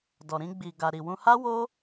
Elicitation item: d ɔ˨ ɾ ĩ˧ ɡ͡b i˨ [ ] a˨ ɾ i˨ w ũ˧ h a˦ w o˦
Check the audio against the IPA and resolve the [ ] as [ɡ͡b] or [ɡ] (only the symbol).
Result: ɡ